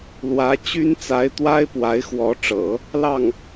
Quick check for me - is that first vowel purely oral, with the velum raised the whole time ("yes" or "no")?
yes